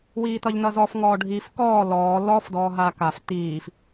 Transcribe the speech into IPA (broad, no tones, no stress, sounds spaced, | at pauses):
w iː t ʌ ʎ n ʌ z ɔ f ŋ ɔː ɖʱ iː f k ɔː l ɔː l ɔ f d ɔː ɦ aː k a f t iː f